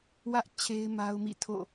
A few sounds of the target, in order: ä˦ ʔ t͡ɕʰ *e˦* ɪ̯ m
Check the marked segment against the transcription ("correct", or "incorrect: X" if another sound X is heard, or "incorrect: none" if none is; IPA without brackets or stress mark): correct